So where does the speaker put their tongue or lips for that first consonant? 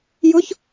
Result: palate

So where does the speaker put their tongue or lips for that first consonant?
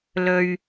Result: tongue tip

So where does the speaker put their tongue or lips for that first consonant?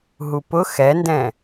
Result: throat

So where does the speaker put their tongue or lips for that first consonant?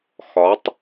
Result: velum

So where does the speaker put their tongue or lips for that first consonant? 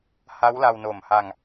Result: throat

